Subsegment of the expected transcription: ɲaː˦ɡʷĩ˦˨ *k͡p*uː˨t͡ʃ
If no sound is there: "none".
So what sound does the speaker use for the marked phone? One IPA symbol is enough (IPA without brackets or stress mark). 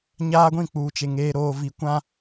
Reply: k͡p